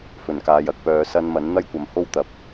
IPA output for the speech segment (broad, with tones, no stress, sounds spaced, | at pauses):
f ɵ˨˩ n k aː˨ j ɐ˨˥ k̚ p œː˨˧ s ɐ˧ n m ɐ˨˥ n n̪ ɐ˥ j kʷ ɐ˨ m h o˥ w t̪ ɐ˨ p̚